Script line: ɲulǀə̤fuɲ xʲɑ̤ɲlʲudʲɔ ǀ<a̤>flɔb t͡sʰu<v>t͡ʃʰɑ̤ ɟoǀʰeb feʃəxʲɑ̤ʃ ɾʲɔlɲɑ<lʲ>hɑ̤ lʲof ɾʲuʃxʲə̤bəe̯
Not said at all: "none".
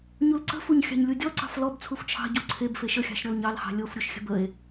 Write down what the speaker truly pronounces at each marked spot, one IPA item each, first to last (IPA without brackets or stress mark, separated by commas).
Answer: ɑ̤, f, l